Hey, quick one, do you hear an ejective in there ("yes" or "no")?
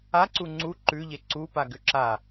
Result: no